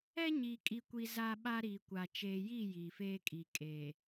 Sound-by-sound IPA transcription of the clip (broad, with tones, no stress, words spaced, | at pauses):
ɛ˦ɲiː˨kʼi˨kʷi˨ za˦ɓa˦ɾiː˨kʷa˨ t͡ʃeː˨jiː˦˨ jiː˨feː˦kʼi˨kʼeː˨